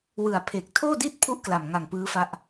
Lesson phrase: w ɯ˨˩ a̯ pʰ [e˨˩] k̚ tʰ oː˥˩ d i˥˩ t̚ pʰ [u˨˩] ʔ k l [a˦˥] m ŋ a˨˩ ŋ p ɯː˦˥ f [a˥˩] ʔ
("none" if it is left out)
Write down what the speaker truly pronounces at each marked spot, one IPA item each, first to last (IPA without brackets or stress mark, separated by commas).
e˨˩, u˦˥, a˨˩, a˦˥